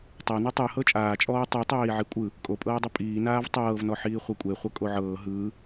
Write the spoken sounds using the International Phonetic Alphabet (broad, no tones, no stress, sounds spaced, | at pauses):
tˤ a n ɤ tˤ ɯ h ɤ t͡ʃʼ aː t͡ʃʼ ɔː tˤ i tˤ eː i̯ ʕ i kʷʼ ɯ | kʼ o pʼ ɤː dˤ ɯ pʼ iː n aː v tˤ ɤː v n ɔ ħ iː χʷ ɛ kʷʼ e χʷ ɤ kʼ o ʕ ɤː ɦ ɯː